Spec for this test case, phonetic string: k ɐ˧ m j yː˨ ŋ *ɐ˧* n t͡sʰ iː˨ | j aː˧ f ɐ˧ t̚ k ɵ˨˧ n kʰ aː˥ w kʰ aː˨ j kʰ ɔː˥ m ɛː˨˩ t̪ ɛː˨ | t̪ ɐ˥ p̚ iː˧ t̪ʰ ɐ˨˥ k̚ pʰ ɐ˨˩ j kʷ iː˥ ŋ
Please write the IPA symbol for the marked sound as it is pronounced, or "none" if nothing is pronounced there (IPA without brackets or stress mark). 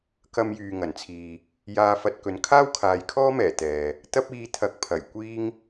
ɐ˨˩